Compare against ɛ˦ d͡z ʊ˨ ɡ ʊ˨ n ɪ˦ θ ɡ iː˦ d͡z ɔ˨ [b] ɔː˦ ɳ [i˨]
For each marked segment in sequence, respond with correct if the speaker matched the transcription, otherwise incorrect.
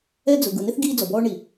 correct, correct

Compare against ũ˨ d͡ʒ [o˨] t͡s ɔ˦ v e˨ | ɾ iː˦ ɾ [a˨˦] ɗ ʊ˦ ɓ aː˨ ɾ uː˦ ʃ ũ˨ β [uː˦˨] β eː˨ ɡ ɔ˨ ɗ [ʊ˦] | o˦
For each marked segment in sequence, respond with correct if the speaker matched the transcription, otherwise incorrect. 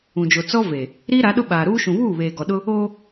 correct, correct, correct, correct

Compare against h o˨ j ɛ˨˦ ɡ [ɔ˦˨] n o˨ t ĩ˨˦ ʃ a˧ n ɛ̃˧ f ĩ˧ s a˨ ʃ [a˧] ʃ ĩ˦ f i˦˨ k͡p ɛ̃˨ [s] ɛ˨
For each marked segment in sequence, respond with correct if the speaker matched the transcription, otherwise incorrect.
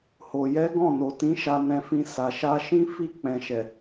incorrect, correct, incorrect

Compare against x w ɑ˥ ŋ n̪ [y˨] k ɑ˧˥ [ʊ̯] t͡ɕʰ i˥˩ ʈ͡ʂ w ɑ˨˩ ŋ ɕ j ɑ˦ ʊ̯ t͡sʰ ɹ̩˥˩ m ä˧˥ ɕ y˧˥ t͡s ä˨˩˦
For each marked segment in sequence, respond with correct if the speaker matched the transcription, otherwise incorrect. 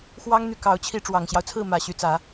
correct, correct

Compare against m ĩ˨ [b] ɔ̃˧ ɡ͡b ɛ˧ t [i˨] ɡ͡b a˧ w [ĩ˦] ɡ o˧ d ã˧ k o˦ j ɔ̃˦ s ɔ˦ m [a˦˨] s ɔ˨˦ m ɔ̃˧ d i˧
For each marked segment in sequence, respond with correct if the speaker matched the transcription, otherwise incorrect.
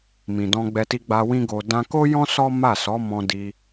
incorrect, incorrect, correct, correct

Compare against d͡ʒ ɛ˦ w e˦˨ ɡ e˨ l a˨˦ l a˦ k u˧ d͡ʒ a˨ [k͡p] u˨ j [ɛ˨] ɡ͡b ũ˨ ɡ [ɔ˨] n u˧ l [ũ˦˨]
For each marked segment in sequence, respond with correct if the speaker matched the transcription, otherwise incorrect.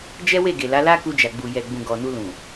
incorrect, correct, correct, incorrect

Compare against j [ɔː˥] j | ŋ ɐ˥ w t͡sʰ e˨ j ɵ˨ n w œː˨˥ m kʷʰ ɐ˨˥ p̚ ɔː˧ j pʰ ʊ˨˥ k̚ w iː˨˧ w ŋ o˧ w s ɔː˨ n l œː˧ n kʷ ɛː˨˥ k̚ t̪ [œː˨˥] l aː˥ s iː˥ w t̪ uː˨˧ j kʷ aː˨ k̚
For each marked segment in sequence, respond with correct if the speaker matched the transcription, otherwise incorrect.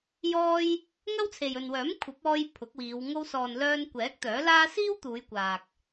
correct, correct

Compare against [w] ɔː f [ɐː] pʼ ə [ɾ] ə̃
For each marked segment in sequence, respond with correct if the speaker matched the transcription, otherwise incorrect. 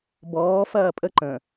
incorrect, correct, incorrect

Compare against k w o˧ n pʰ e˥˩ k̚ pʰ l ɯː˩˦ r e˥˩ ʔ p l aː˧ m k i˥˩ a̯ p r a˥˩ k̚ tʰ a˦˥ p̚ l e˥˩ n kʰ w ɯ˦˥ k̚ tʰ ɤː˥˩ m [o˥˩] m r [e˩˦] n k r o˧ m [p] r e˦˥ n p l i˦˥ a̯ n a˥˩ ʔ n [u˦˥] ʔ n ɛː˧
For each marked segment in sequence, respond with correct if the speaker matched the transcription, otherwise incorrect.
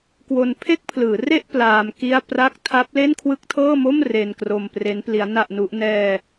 correct, incorrect, correct, correct

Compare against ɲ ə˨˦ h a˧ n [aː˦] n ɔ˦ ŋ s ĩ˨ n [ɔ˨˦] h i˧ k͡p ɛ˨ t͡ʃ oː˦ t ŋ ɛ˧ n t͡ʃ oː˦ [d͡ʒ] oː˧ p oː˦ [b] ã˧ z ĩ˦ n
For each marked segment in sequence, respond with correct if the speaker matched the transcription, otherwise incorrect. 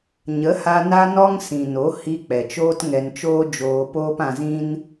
incorrect, incorrect, correct, incorrect

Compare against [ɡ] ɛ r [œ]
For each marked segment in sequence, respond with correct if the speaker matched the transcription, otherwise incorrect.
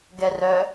correct, correct

